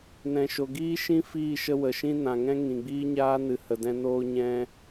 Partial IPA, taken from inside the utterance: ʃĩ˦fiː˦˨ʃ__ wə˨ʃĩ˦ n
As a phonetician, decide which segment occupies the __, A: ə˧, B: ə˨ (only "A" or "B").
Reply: A